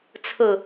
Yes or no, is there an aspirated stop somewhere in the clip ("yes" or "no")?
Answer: yes